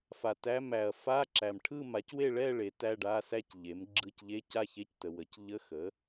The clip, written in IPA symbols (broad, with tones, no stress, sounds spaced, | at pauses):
f a˨ t æ˧˥˧ m æ˨ ɐ̯ f a˧˥˧ ǁ æ˨ m ʈʰ ɯ˥˧ m a˩˥ c w e˥˧ ɭ ɛ˥˧ ɭ e˩˥ t æ˧˥˧ ɖ a˧˥˧ s æ˥˧ c ʎ e˩˥ m ɡ͡ǁ ɯ˧˥˧ c ʎ e˧˥˧ c a˥˧ ç e˧˥˧ c t ə˨ w ə˩˥ c ʎ ə˧˥˧ x ə˩˥